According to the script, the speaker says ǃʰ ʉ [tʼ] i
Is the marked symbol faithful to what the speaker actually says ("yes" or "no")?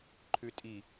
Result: yes